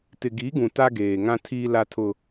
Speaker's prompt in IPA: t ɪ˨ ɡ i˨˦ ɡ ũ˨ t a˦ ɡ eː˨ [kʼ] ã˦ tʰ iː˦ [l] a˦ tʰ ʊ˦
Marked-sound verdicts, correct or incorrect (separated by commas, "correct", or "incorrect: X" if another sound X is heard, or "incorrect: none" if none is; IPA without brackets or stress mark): incorrect: ŋ, correct